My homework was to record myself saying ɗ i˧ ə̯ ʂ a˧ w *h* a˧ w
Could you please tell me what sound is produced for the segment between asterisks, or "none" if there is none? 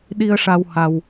h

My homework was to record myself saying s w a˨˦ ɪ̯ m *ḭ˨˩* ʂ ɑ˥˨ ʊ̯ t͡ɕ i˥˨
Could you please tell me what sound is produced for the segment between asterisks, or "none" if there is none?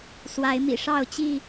ḭ˨˩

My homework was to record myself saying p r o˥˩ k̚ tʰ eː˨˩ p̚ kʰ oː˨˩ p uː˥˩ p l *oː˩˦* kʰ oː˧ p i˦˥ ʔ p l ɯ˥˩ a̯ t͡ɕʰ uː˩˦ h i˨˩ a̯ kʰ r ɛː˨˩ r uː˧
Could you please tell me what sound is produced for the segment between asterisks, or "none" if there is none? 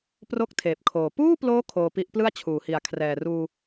oː˦˥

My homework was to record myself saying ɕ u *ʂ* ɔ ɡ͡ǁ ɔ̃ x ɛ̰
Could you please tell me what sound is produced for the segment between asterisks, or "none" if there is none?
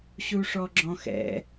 ʂ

